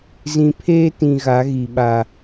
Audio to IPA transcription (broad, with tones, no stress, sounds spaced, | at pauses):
z ĩ˨ pʰ eː˦ t ĩ˨ ɣ a˨˦ ɣ i˨ ɓ a˨